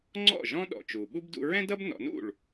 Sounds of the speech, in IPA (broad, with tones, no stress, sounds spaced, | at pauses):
ŋ͡ǀ ɔ̰˥˩ ʒ ɔ̃˥ ɗ ɔ̰˩ t͡ʃ u˩ ɓ u˥ b d ṵ˧ ɹ ɛ̃˥ d ʌ˥ b n ɔ̰˩˥ n ṵ˥˩ ɭ